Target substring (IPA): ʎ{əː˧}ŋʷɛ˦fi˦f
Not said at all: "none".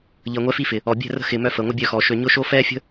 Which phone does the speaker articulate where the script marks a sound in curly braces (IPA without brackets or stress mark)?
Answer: əː˧